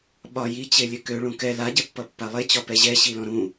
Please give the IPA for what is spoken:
ɓɒ jit͡ɕelʲɘ køɭũ kɛ laɟɛpːʌpːa lˠet͡ɕɒpɛ ʑɛɕilɔ̃ ɾũ

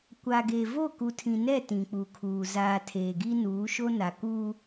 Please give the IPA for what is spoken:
kʷa˨ɡe˨ vo˦˨ku˨tʰĩ˨nɛ˦˨ tĩ˨k͡pu˨kʰuː˨ zaː˨ tʰeː˨ɡi˦nuː˨˦ʃo˦ na˨kuː˦

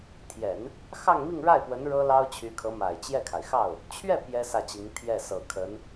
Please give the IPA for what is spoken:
t̪ʰjɛ˨˩˦n | xɑ˥˧ŋmi˥˧ŋɻa˥˩ɪ̯pwə˧˥n ɻɤ˥lɑ˥ʊ̯ t͡ɕʰy˧˥kʰɤ˧˥ma˨˩ɪ̯ t͡ɕjɛ˥˩kʰa˩ɪ̯xɑ˥˩ʊ̯ | t͡ɕʰɥɛ˥˩ pjɛ˥ sä˥˩t͡ɕi˧˥ŋ t̪ʰjɛ˥˩sɤ˨˩ kʰə˧˥n

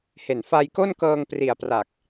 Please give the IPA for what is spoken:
he˨˩nfa˧jko˥˩nkɤː˧ŋ pri˨˩a̯pra˨˩k̚

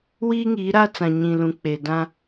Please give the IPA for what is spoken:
wiː˦ŋiː˨˦ɾaː˦t͡sã˨ ɲĩ˨lũ˨ k͡peː˨dã˦

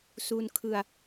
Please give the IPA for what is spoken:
su˧nkʰɯ˧a̯

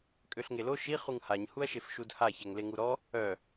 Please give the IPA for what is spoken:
kʼøɬŋelo ʃi χuŋhaɲ huɐ̯ʃefʃudha çɛŋleŋuɾɔ | œ

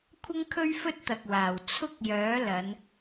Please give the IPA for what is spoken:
kʷʰɐ˥ŋkʰɵ˥ɥfɵ˥t̚t̪ɐ˨k̚ waː˨˩w t͡sʰʊ˥k̚jœː˨˥ lɐ˨˧n

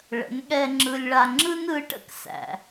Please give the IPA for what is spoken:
ɭə̰˨˦n ɠɛ˦ŋ͡ǁɯ˦lʲɭa˦ ŋ͡ǁɯ˦nɯ˨˦ʈə̰˦k sæ̰˦

